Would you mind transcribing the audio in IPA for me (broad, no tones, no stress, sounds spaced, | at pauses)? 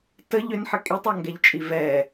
t ə ʎ ʏ n ħ ə kʼ i tˤ ɔ ŋ ɡ ɛ ʎ t͡ʃʼ i v ɛ